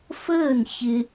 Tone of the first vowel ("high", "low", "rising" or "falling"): falling